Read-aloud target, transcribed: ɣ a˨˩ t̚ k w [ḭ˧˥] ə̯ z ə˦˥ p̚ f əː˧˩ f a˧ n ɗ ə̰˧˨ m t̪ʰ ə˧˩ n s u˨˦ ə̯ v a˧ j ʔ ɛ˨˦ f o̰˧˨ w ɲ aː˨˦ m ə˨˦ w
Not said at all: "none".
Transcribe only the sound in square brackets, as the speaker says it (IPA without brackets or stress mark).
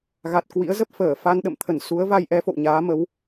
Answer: ḭ˧˥